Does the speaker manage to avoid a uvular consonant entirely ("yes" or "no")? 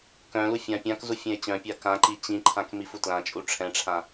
yes